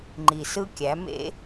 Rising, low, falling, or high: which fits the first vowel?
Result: low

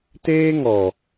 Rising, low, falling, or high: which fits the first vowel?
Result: high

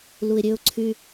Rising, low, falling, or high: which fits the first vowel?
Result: low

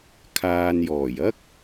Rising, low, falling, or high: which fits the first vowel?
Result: low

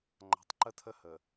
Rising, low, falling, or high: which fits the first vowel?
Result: low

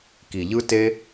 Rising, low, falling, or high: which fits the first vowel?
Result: low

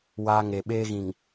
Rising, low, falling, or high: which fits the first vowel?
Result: high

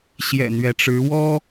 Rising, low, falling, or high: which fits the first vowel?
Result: low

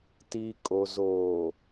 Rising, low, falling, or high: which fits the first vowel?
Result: low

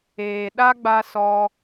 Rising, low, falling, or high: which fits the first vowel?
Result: low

